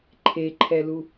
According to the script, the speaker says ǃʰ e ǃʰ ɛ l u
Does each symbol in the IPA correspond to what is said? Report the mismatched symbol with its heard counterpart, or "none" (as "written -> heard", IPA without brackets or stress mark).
none